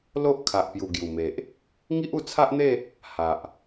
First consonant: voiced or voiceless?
voiced